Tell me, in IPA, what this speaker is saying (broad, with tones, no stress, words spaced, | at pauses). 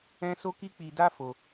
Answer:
ɛ̃˦ so˦ki˦k͡pi˧da˦ fo˧